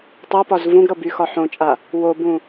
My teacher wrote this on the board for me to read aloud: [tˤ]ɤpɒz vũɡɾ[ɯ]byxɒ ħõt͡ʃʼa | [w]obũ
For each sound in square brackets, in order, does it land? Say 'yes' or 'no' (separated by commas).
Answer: yes, no, yes